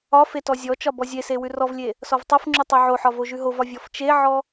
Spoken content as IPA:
ɒ fetɔzʲɔt͡ʃɒ bɔzʲese wʉrɔvlʲe | sɔvtˤofŋ͡ǁʉ tˤʉʕoħɒ voʒʉɦovɒ vʲɔft͡ʃeʕɔ

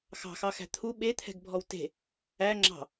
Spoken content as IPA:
xɑ̤xɑxæ̤ t̪ʰu ɓet̪ʰɛ̤ɡbʱɔw te̤ | æ ŋ͡ǁɑ̤

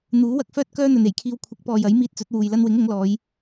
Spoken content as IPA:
n̪uː˨˥wɐ˧k̚fœː˥t̚ kœː˥n̪ɵ˨ne˨˩jkʰiː˧w kʷʰɪ˨˥k̚pɔː˨jɐ˨˥j miː˧t̚t͡sɵ˨˥t̚wuː˨j lɐ˧nwɪ˨˥ŋ ʊ˨˥ŋlɔː˨˧j

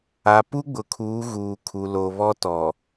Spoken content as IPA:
a˨pu˦ ɡ͡bʊ˨kʰuː˨˦ɣuː˨ kʰu˨lo˨βɔ˦tɔ˨

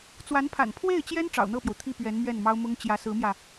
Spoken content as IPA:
t͡swa˧˥npʰa̰˨˩n pʰwe˥˩ɪ̯t͡ɕjɛ˥n ʈ͡ʂɑ̰˨˩ʊ̯n̪ɤ˥˩pjo˩ʊ̯ t̪ʰi˥˩pɥɛ˧˥n mɥɛ˥˩nmɑ˥ʊ̯mʊ˥ŋ t͡ɕjä˧˥sɹ̩˧˥mjä˧

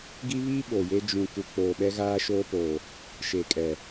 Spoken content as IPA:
ɡi˦βi˦ ɓo˨je˦ d͡ʒũ˨ ku˨k͡poː˨ ɓɛ˦ɣaː˦ʃoː˦poː˨ | ʃe˨kʼɛ˨

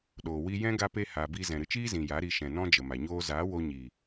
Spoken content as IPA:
ɗoː˨ wi˧ jɛ̃˦ ɡa˦pe˦ ha˧bi˦ zɛ̃˨ɾɨ˧t͡ʃiː˦zĩ˨ ja˨˦ ɾi˧ʃɛ̃˨ nɔ̃˦d͡ʒə˨ma˨ɲoː˦ zaː˨˦wo˧ ɲi˨

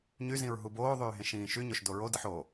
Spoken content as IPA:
ɲyzĩɹ ɦuboːðˤyː ɦẽʃĩːʃyɲoʃ doɹodɯħ o

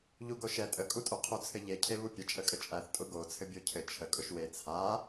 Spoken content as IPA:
ʎuɡoʃɛ tʼəkʼutʼoqʰu t͡sʰɘʎecʰeβu pʲə t͡ʃʼəkʼət͡ʃʼæθ tʼʊɡot͡sʰɘ bʲocʰɘ t͡ʃʰə kʼʊʃwe t͡sʰa

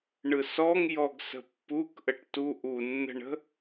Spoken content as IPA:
ɳɯsɔŋ jɔɡsə̤pːuk ʔəʈtu ʔunːə̤ɳə̤

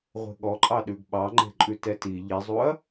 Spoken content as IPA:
ʁʷe̤ɠɔǃʼɑ ɗʉɡɓɑŋ͡ǃe̤ǃʼʉ tɛti ʎizˤuɐ̯

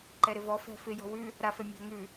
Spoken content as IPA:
ǃɛɾɪvɔ fɛ̤fɪ jɔ̤wʉ | ɾafɛ mʲa̤ŋʉ

